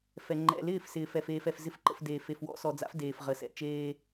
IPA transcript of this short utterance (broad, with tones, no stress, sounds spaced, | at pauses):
f ɛ˨ ŋ͡ǃ ɛ̰˨ l ɪː˦˨ f s ɪː˨ f ɛ˨ f eː˨ f ɛ˨ f z ɪ˦ f ǃ ə̰˦˨ f d eː˨ f e˨ f w ɔ̰˦ s ɔ˨ d͡z a̰˦ f d eː˨ f ʁ ə˨ s ɛ̰˨ t͡ʃ eː˦